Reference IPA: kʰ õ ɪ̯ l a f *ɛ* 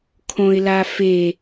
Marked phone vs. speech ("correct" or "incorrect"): incorrect